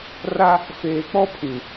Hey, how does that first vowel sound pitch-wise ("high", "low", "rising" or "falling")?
high